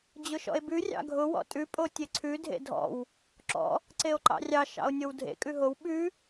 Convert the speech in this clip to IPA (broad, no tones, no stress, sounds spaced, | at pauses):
d͡ʑ ʊ ʃ ɔ̰ e̯ b ʉ rʲ ɑ̰ ɡʱ ʊ w ɔ̰ tʼ ʉ pʼ o tʲ e ǀʰ ʉ dʱ ḛ dʱ ɔ̰ w | ǁ ɔ̰ | ǀ e o̯ ǃ ɑ̰ rʲ ɑ ʃ ɑ̰ o̯ nʲ o w dʱ ḛ kʼ ʉ ɦ o w ɓ ʉ